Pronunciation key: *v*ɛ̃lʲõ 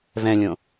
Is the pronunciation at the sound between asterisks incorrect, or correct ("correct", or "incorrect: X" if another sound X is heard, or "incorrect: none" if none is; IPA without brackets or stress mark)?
correct